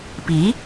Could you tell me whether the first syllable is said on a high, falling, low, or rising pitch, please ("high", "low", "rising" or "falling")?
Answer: rising